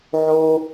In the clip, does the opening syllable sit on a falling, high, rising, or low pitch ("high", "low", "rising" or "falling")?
high